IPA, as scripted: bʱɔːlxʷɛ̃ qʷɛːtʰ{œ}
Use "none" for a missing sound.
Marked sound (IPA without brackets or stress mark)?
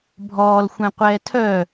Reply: œ